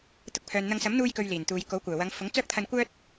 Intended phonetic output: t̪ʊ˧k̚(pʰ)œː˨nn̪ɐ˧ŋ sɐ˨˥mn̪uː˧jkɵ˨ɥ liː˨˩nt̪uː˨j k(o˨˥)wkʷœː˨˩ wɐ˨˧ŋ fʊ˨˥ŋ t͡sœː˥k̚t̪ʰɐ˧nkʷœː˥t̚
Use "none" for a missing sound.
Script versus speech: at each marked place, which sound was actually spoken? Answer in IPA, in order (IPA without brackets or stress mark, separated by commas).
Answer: pʰ, o˨˥